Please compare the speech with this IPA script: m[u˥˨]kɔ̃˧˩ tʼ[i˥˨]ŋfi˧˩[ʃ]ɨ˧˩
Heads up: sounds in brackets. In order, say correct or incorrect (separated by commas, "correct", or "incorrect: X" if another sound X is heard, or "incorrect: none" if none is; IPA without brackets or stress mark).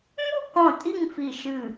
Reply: correct, correct, correct